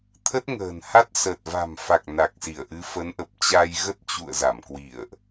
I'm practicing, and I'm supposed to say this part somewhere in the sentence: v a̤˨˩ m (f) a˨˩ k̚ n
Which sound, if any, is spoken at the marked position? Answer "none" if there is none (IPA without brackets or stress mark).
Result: f